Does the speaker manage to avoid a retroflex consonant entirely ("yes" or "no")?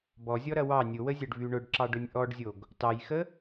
no